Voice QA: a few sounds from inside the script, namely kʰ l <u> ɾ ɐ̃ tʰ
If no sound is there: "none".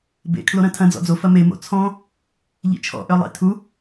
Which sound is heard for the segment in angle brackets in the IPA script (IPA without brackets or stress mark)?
o